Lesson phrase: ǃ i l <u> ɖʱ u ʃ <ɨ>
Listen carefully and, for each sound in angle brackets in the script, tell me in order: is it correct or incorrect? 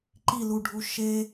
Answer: correct, incorrect: e

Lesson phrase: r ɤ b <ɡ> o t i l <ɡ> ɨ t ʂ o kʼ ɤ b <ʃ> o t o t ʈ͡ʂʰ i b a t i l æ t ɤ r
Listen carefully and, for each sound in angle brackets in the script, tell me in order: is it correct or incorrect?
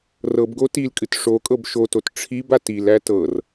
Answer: correct, incorrect: kʼ, correct

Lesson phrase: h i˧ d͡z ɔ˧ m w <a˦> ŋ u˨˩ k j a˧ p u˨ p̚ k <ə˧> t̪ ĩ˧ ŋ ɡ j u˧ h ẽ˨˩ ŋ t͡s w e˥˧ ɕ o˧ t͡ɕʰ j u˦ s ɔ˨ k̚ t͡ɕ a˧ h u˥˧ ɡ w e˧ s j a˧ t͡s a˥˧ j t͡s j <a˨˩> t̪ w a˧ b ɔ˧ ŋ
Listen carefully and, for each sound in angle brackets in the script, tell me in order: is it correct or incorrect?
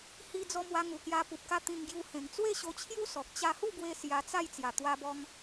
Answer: incorrect: a˧, incorrect: a˧, correct

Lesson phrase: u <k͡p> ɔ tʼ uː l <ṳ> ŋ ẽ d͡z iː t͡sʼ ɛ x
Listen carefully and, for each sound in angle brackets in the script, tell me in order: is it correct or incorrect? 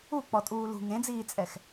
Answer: correct, correct

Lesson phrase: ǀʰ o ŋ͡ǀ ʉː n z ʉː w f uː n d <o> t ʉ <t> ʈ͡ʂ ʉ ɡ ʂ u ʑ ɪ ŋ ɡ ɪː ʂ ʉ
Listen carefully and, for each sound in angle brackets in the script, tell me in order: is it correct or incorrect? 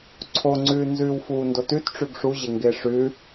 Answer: correct, correct

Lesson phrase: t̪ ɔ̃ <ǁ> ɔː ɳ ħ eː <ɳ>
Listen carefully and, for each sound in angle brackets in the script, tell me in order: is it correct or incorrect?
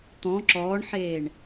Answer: correct, correct

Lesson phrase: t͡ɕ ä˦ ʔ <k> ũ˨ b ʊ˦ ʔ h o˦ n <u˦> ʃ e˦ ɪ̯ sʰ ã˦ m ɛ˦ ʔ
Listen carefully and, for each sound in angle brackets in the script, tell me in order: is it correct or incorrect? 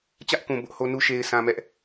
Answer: correct, correct

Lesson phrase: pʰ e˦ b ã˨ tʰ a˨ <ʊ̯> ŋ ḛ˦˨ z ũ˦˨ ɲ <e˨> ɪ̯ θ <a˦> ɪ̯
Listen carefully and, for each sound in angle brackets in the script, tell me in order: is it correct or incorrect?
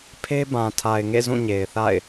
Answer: incorrect: ɪ̯, correct, incorrect: a̰˦˨

